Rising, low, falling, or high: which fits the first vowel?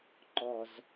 low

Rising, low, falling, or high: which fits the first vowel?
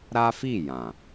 high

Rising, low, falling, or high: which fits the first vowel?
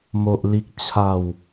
high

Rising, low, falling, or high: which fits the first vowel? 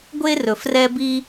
high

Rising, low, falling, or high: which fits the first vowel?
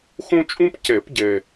high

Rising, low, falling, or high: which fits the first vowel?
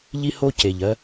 high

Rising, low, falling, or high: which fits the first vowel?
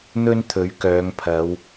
high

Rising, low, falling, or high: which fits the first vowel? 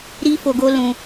high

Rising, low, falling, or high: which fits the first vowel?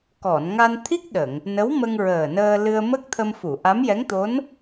low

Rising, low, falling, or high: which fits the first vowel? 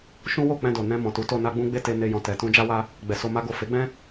high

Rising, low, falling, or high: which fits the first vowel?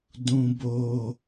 high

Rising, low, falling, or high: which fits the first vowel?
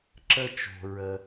high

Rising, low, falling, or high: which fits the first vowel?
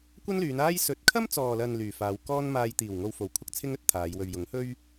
high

